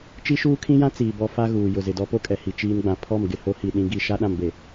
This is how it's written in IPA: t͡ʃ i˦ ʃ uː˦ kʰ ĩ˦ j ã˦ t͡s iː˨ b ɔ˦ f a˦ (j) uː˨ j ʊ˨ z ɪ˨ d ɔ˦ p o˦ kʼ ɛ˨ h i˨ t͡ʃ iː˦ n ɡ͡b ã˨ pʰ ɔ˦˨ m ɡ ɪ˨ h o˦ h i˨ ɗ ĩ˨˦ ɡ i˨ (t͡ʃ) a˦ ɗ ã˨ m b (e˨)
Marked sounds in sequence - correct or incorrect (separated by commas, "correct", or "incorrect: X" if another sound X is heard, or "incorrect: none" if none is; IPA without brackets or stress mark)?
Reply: incorrect: ɣ, incorrect: ʃ, correct